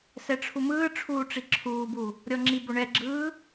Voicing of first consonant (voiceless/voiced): voiceless